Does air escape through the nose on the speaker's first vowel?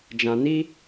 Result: yes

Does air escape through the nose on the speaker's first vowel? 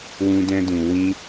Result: yes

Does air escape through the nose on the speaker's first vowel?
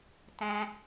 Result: yes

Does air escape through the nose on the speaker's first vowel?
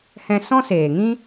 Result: yes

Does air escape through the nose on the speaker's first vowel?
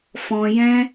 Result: yes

